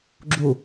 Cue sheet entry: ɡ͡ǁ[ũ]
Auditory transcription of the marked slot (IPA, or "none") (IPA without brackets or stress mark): u